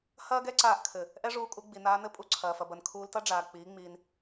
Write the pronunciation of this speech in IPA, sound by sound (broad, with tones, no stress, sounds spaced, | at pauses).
h ɐː˦ ɡ ɛ˦ ǀ aː˧ ʔ kʰ ɘ˨ | ʔ ɛ˦ ʐ uː˧ kʼ u˧ ɡ͡b i˨ n aː˧ n ɘ˦ pʼ u˧ ǀʰ ɐː˨ f ɐ˨ b ɐ˨ n kʰ uː˧ l t ɐ˦ ɖ͡ʐ aː˨ k͡p iː˨˦ ŋ͡m iː˧ n